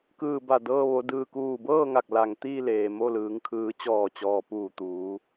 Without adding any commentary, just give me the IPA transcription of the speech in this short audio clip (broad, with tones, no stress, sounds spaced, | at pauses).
k ɯː˧˩ b a˧˩ d ɤː˧ ʋ o˩˧ d ɯː˩ k uː˧˩ b ɤː˥˨ ŋ a˧˩ k̚ l a˩ ŋ t̪ iː˥˨ l eː˩ m o˥˨ l ɯː˩˧ ŋ kʰ ɯː˩˧ t͡ɕ ɔː˧˩ t͡ɕ ɔː˩ p uː˧˩ t̪ uː˩˧